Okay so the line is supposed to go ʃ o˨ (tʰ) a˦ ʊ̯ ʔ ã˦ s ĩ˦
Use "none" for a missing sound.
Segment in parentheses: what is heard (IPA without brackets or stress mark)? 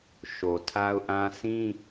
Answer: tʰ